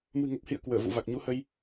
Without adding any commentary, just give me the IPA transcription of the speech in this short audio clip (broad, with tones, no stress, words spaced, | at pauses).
mɨ̤˨˩ŋə˨˩p̚hḭ˧˨ə̯ kwəː˧˩vṵ˧˨ va˨˩k̚ɲu˨˦hə˧j